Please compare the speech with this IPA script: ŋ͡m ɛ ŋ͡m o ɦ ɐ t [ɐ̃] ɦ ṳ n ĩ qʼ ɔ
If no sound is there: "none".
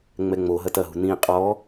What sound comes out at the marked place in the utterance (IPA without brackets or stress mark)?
ɐ